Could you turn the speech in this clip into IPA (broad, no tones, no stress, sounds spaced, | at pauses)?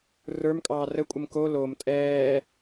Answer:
r ə˞ m kʼ ɑː r ə kʷʼ ə m k o l o m tʼ ɛː